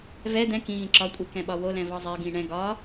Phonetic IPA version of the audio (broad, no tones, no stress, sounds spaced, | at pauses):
v ɛ d̪ ɛ̃ k ĩ ɣ ĩ ǁ ɒ kʷʼ i k ɛ̃ ɓ ɒ w o l ɛ̃ v ɒ zˤ ɛ ɡ ĩ ɳ ɛ̃ ɡ ɒ